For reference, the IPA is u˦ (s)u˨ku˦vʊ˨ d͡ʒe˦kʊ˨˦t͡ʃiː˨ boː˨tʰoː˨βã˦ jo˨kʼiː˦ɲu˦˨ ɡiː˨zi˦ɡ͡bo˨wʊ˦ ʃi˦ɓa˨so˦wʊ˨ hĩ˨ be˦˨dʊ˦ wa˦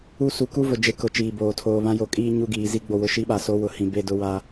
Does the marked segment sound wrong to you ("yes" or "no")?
no